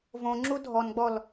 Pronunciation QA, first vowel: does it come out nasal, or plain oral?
nasal